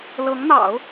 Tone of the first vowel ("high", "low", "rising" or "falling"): rising